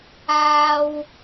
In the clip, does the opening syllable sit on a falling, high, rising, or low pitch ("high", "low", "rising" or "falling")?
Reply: high